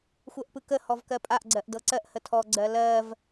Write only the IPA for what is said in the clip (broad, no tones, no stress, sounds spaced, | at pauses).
xʷ ɜ ʔ p ɯ k ə h ɔ v k ɜ pʼ a ʔ ɡ͡ǀ ɜ ʔ d ɤ ǀ ɜ ʔ h ə tʰ ɔ ɡ͡ǀ ɜ l ɜ v